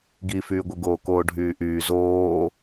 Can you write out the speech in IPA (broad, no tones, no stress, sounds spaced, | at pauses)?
ɡ i f yː ɡʷ ɯ ɡ oː k oː ɖʱ yː ʔ yː z oː